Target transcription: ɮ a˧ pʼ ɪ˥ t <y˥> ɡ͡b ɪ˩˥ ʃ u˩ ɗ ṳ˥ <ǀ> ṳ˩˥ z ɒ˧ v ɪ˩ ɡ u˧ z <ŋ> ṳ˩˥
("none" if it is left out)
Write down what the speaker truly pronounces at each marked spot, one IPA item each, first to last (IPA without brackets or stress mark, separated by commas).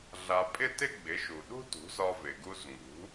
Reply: ɪ˥, t, ŋ